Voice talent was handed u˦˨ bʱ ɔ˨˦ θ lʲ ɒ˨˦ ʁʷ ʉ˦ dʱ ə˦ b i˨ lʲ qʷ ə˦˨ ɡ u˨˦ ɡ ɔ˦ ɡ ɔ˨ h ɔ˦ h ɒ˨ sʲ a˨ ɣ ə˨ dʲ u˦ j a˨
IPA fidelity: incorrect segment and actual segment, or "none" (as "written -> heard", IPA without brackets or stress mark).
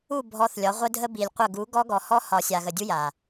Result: ʉ˦ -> ə˦